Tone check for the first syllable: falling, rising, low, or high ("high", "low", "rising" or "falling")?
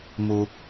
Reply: high